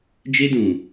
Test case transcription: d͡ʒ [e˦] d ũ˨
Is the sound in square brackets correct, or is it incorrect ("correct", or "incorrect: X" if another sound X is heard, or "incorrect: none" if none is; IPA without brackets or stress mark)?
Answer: correct